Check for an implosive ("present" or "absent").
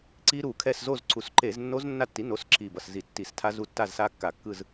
absent